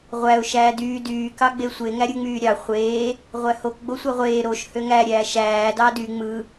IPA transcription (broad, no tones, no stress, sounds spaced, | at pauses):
ʁʷ æ ʊ̯ ʃ æː d yː d yː k ɑ ɡ͡b e sʷ e ŋ æ ɾʲ ɯ ŋ͡m yː ɾʲ ɑ χʷ eː | ʁʷ æ h o k ɡ͡b o sʷ æ ʁʷ eː ɾ o ʃ h ø ŋ æ ɾʲ æː ʃ æː d ɑː d y ŋ͡m ɯ